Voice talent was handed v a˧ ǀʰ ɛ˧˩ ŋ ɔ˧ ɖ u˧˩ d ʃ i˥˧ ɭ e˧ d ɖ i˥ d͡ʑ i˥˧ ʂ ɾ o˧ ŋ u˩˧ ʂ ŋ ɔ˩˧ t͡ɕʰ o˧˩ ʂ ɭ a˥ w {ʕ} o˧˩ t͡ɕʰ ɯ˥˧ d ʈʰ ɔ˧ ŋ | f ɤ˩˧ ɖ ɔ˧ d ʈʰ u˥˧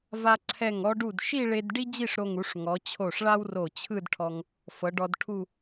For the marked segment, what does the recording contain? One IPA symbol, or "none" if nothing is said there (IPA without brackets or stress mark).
r